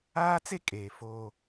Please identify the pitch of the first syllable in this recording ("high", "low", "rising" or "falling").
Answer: high